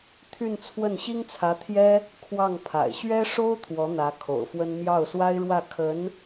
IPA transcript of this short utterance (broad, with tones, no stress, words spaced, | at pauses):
t̪ʰy˥˧nt͡sʰwə˥˩n ɕi˥ŋt͡sʰä˧˥t̪ʰjɛ˥ | kʰwɑ˥˩ŋpʰa̰˨˩ɪ̯ ɕɥɛ˥ʂo˥ʊ̯ t̪ʰwɔ˧˥n̪ä˧˥ kʰo̰˨˩ʊ̯fwə˥n mjɑ˥˩ʊ̯swa˥ɪ̯ɻwä˥˩ kʰə˧˥n